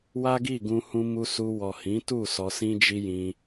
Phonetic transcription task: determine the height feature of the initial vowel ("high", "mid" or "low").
low